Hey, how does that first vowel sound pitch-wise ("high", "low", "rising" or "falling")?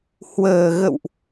low